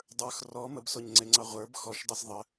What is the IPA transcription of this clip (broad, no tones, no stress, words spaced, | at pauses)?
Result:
dˤə˞x rɔ məbsoɲŋ͡ǀeŋ͡ǀɑ ʁʷə˞b xɔʃdˤes ðˤə